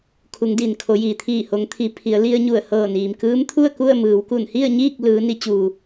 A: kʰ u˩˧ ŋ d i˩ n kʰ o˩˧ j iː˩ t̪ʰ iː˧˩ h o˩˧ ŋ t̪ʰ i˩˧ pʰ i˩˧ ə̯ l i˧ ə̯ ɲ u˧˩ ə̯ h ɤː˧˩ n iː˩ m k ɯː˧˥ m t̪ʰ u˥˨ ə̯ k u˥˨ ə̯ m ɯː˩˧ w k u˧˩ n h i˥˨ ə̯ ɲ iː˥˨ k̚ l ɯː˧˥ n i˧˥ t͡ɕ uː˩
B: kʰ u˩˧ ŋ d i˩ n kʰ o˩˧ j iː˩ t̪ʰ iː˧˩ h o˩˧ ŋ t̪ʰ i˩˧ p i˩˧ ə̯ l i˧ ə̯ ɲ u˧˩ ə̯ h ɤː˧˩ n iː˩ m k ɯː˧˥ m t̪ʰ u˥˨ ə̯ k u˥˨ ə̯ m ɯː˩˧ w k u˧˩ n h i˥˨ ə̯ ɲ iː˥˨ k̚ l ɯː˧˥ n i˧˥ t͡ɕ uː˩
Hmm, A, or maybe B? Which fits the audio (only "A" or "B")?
A